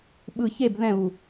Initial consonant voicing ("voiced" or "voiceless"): voiced